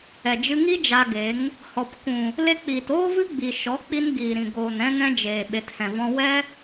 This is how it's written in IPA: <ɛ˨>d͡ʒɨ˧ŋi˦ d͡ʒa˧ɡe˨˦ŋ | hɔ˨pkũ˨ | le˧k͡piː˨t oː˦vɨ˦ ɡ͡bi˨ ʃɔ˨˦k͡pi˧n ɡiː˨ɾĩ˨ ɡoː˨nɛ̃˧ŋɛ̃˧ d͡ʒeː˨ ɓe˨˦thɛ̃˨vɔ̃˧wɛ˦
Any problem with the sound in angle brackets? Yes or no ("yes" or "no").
no